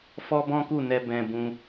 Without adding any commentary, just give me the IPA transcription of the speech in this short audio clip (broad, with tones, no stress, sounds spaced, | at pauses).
f ɔ˦ b ɔ̃˦ k u˦˨ n ɛ˧ b ɛ̃˧ b ũ˧